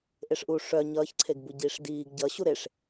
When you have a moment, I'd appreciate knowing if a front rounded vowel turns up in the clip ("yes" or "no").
yes